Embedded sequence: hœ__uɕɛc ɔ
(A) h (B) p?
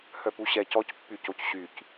B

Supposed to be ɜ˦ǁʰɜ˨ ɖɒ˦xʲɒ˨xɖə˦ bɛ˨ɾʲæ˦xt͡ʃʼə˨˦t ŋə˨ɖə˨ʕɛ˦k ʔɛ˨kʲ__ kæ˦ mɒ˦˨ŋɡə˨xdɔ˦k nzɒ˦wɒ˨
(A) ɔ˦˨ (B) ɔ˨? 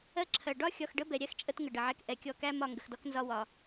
A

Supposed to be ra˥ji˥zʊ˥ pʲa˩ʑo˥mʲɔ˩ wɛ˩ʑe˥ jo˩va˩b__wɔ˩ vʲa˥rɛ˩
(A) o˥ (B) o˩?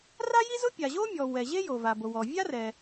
B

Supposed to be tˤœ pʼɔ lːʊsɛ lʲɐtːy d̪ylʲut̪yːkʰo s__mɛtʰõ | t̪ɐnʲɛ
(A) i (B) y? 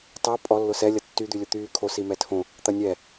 A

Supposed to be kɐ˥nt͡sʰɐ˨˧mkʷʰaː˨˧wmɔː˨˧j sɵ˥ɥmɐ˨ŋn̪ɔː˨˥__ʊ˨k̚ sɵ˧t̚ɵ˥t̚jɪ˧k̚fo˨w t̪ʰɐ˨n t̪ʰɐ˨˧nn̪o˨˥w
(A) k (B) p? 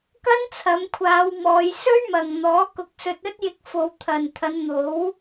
A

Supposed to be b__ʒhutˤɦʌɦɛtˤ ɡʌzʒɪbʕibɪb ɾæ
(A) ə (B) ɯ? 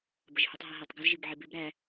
A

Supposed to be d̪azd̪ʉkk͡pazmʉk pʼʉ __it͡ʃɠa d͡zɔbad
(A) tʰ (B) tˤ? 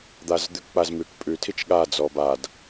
A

